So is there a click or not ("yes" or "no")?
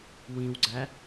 yes